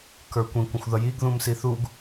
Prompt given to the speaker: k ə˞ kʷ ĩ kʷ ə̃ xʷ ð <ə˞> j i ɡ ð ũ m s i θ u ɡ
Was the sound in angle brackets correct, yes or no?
no